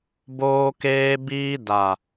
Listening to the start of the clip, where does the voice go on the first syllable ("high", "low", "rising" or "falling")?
high